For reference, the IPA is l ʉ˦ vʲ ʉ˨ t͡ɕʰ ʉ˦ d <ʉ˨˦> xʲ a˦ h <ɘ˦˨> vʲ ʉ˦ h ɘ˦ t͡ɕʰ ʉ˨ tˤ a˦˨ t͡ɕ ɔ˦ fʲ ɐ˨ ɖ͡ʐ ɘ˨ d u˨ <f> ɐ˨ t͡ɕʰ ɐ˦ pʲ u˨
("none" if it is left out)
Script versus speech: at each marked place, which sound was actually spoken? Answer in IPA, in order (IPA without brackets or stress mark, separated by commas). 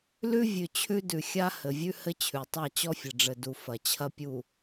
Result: ʉ˨, ɘ˨, f